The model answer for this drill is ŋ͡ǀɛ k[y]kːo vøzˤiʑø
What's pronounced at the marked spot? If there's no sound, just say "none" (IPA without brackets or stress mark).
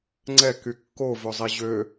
y